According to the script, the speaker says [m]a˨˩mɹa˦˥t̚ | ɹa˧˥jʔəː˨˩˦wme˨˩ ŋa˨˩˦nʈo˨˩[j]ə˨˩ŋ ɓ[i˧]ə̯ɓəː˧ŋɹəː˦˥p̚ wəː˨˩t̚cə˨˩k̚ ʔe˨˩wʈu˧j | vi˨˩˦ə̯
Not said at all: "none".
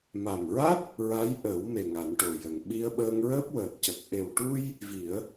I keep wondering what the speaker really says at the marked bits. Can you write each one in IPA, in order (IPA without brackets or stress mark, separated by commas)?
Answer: m, j, i˧